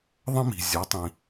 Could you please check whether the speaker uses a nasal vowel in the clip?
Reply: yes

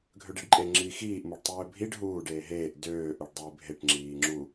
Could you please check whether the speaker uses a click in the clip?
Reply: yes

